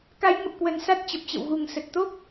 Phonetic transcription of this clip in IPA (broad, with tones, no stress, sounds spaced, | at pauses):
k a˨˦ j ŋ ə˨˩ p̚ k w ə˨˩ n s a˦˥ t̚ t͡ɕ ə˨˩ p̚ t͡ɕ ə̰˧˨ w ɣ u˨˩ ŋ s ə˨˩ t̚ t̪ o˦˥ k̚